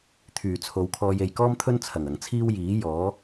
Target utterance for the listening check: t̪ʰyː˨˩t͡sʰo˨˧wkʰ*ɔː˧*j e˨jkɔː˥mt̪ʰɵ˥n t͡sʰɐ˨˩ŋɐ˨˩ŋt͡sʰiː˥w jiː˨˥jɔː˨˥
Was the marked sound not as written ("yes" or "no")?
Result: no